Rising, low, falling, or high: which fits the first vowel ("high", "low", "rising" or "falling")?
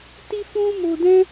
high